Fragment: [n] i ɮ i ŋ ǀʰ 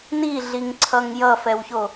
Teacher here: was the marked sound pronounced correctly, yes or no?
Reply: yes